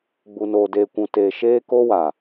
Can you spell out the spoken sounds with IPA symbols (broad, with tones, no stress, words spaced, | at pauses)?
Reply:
ɡ͡bu˨noː˨deː˨kʷũ˨ teː˨ʃeː˦ko˦wa˨